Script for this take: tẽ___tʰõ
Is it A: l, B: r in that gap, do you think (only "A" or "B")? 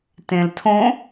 A